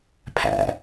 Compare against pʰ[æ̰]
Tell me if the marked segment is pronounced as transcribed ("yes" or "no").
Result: yes